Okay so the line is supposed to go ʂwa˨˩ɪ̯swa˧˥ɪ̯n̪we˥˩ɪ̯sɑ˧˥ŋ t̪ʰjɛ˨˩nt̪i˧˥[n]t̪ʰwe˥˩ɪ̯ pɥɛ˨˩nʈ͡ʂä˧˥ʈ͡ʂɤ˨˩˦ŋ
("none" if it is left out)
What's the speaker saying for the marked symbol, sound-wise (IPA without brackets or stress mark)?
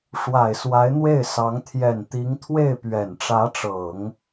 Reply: ŋ